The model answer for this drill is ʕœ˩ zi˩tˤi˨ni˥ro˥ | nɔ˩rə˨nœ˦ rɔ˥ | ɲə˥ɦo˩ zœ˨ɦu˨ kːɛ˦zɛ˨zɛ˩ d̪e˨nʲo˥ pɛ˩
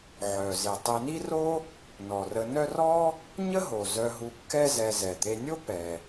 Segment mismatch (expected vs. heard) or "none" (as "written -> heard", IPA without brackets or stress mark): none